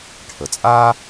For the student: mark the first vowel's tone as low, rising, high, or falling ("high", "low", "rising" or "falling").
low